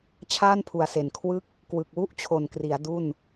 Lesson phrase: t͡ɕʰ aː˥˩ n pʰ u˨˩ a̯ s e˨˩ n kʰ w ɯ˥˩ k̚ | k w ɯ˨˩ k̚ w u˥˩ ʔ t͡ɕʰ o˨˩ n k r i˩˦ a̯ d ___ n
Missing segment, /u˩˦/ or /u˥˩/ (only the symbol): u˥˩